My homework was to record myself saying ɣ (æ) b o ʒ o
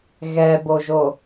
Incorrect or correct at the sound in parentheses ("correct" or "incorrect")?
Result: incorrect